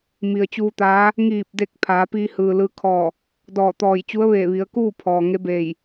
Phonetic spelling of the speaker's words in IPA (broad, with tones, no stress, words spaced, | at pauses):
mi˩ə̯t͡ɕuː˧ t̪aː˧˥ | ŋiː˧˩p̚de˧˩k̚ pʰaː˩˧ piː˧hɯː˩lɯː˧ kʰɔː˧˩ | dɔː˧˩t̪ɔː˧˩j t͡ɕu˧˥ə̯ʋeː˧˩ʋi˩˧ə̯kuː˥˨ pʰɔː˩ŋe˧˥beː˧˩j